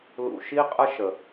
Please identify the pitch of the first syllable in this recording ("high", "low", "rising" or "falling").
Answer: low